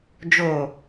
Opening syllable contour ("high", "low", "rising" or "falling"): low